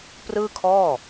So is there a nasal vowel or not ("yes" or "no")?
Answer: no